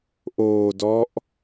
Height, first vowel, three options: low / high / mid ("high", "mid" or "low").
mid